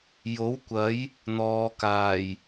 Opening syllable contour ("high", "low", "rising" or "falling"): rising